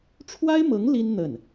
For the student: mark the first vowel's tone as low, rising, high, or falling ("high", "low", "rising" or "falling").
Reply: high